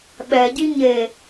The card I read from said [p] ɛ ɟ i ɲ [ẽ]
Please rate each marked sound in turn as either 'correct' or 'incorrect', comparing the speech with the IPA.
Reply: incorrect, incorrect

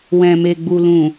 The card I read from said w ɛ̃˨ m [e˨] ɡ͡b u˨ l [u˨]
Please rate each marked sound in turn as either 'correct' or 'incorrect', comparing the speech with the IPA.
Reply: correct, incorrect

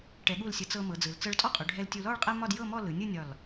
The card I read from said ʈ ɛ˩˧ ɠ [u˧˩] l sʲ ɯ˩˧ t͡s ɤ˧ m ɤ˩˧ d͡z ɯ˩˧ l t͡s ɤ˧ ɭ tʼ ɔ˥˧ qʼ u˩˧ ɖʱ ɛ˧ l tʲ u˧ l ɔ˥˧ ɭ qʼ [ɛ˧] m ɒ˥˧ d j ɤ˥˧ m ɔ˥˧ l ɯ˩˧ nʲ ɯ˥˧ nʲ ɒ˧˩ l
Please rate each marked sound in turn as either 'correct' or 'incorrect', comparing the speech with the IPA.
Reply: correct, incorrect

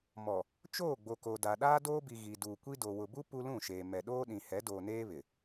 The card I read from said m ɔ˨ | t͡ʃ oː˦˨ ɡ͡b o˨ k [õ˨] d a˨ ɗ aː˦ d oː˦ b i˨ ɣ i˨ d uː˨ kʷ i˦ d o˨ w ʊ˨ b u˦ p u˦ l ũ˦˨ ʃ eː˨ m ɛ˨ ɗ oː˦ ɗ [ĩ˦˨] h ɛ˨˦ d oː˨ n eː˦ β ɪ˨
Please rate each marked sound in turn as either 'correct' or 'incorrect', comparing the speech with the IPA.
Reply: incorrect, incorrect

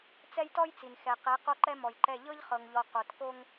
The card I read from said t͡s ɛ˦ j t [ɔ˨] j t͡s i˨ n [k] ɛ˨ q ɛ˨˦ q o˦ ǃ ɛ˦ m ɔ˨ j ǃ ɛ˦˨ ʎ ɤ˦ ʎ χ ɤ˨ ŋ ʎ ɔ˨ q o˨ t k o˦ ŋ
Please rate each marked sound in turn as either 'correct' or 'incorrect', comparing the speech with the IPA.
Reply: incorrect, incorrect

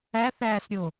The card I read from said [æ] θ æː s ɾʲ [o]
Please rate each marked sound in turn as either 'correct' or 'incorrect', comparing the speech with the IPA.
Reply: correct, correct

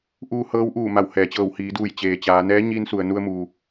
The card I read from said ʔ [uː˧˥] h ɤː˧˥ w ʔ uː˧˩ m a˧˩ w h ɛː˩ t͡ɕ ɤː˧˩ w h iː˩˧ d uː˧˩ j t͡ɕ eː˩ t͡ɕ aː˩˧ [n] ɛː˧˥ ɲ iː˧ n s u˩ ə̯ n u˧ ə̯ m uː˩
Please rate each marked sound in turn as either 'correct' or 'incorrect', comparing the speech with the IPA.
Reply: incorrect, correct

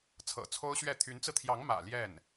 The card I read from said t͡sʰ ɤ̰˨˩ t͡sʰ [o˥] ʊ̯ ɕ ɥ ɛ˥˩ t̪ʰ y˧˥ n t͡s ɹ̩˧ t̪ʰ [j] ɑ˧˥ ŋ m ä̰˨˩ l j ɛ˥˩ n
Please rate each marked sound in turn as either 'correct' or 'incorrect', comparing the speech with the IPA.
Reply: correct, correct

